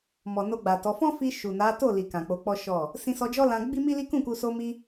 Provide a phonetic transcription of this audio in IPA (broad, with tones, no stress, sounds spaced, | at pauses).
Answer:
m ɔ˨ n o˧ ɡ͡b a˨ t ɔ˨˦ f ɔ̃˦ f i˧ ʃ u˨ n a˨˦ t o˦˨ l i˨ k ã˨ k͡p o˨˦ k͡p ɔ˦ ʃ ɔ˦˨ | s ĩ˧ s ɔ˧ d͡ʒ ɔ˦ l ã˧ ɡ͡b i˦ m i˦ l i˦ k ũ˦˨ k u˧ s o˧ m i˧